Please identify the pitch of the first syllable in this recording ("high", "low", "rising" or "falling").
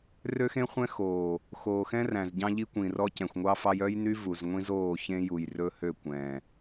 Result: high